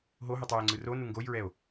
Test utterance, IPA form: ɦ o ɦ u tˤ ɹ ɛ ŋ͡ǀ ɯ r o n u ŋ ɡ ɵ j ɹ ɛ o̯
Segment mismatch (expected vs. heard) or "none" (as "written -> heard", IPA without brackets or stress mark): ɵ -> o